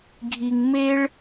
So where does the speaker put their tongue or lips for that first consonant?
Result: velum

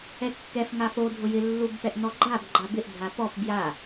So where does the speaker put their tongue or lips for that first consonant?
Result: velum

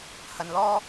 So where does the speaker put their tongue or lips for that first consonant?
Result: throat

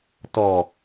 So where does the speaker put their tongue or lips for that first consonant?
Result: tongue tip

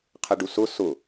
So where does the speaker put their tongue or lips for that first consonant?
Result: uvula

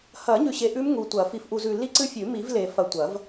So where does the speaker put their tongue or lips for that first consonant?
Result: throat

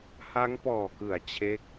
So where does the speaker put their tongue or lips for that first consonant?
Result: throat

